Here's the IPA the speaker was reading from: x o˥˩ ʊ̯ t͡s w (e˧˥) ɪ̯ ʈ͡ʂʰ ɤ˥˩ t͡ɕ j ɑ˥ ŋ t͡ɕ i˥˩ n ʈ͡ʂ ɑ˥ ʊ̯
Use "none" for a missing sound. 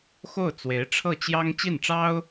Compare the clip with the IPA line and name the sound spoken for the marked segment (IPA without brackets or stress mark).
e˧˥